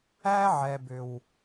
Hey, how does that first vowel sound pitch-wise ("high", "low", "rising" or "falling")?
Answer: high